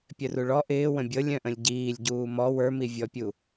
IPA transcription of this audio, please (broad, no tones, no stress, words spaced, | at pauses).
pʲœruɭɔ ʔɪːwə̃ bʲɤlʲ œ̃ʔə̃lʲɟiːlʲ ɟuːmɔ wə˞mivʲɔpʲu